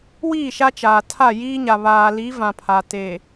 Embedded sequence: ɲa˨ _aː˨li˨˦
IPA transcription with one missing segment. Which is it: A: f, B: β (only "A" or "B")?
B